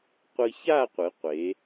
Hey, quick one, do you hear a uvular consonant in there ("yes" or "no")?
yes